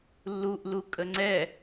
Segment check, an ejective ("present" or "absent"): present